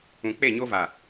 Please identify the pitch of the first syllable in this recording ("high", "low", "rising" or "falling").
low